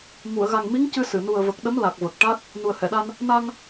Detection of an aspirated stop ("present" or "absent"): absent